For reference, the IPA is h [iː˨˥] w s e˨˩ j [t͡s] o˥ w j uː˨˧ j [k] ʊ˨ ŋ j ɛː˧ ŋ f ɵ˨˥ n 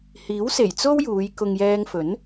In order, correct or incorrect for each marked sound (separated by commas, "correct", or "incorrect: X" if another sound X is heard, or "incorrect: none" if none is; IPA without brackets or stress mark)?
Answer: correct, correct, correct